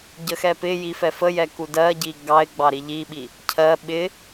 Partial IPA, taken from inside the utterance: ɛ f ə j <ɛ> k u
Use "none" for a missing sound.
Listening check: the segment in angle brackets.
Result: ɛ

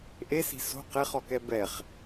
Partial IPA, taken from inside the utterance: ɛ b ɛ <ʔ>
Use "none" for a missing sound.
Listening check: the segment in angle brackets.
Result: χ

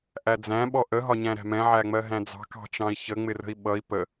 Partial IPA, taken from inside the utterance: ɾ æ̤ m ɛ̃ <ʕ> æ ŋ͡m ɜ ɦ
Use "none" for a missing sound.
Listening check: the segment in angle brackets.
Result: ʕ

